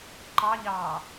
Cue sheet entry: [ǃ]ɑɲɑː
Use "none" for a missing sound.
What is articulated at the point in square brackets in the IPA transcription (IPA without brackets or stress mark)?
ǃ